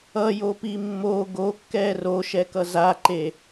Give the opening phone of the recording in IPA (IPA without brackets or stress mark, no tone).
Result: ʌ